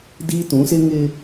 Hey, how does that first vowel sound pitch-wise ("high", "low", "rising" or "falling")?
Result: high